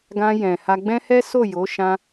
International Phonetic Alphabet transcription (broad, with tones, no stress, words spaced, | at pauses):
ɡã˧jɛ̃˨ ha˧ɡ͡bɛ̃˦hɛ˦ so˦˨jo˨˦ʃã˧